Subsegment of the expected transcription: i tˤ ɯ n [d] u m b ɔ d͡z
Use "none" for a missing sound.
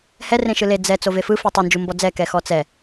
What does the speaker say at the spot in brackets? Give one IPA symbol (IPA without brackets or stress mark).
d͡ʒ